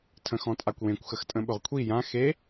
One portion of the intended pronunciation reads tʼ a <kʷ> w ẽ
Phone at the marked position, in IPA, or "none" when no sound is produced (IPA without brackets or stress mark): kʷ